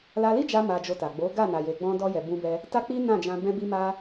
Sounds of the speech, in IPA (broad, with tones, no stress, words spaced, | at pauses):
la˧li˦d͡ʒa˧ ma˧d͡ʒo˧ta˨ ɡ͡bo˨˦ɡa˦˨ na˨je˨ɡ͡bɔ̃˧ dɔ˧jɛ˨ bũ˧bɛ˧ | ta˦k͡pi˦nã˦˨d͡ʒã˧ bɛ̃˧bi˧ma˧